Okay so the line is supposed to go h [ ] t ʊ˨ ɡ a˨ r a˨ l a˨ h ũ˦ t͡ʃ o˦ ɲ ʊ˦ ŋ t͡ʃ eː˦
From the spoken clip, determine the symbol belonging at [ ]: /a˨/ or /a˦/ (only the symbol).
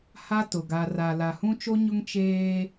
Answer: a˦